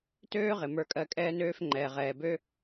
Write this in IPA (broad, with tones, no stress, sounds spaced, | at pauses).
t øː˥ ʁ ɪ˩ m ə˞˧ kʼ ɜ˧ kʼ ɛː˥ n øː˥ f ŋ͡ǃ ɛː˩ ʁ ɛː˩ b ø˥